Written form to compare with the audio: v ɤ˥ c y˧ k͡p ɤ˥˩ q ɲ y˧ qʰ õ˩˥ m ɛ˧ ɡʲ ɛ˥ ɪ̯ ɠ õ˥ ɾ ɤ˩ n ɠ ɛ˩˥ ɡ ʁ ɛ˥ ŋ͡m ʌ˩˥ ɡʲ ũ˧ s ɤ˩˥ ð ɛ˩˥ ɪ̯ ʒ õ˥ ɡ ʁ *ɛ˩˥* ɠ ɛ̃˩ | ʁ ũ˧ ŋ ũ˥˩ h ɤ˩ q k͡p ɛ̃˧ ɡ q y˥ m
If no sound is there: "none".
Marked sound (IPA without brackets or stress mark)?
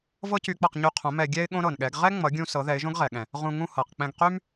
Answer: ɛ˩